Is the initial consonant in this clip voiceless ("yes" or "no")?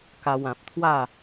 yes